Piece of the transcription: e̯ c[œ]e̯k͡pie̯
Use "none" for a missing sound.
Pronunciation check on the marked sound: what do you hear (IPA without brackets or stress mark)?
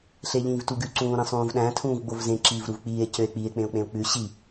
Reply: ø